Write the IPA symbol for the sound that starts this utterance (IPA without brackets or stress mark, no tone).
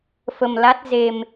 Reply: f